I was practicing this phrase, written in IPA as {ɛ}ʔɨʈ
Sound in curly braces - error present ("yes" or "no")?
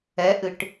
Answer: no